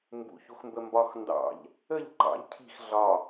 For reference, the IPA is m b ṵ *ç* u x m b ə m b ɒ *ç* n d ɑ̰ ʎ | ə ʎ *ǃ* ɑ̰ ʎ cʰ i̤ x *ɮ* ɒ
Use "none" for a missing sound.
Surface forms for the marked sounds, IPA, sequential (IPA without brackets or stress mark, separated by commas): ç, x, ǃ, ɮ